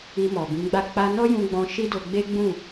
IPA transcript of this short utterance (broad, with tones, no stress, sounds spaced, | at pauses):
i˧ m ɔ˨ b ĩ˨˦ ɡ͡b a˦˨ k͡p a˧ n ɔ˦ j ũ˧ ɡ͡b ɔ̃˧ ʃ i˦ d o˧ ɡ͡b e˦ ɡ͡b ũ˦˨